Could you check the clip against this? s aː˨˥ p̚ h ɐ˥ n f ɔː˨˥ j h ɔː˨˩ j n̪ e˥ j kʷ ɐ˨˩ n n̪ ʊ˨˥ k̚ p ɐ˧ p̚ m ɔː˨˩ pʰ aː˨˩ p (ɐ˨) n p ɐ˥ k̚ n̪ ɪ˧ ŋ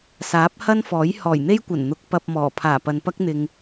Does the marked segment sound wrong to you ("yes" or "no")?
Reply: no